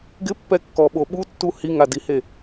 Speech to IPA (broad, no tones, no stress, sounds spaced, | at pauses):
ɡ ɪ pː ɛ kː ɔ ɓ o ɓ u tː u h i ŋ a d i h e